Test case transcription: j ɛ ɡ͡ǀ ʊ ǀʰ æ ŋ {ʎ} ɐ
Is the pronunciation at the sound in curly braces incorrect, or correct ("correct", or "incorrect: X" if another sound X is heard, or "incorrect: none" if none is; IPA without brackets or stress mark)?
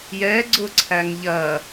correct